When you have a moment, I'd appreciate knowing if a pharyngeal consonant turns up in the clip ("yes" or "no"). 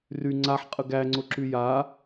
yes